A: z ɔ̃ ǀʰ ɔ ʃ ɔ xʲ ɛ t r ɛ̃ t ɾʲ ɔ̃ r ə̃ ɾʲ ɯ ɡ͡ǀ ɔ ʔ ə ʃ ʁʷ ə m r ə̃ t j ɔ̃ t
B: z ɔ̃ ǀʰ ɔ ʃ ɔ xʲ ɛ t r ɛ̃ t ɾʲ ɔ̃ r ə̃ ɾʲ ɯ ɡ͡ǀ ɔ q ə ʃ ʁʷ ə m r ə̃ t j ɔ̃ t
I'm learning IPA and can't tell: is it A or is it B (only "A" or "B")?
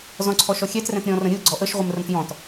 A